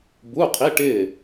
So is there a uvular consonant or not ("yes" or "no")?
yes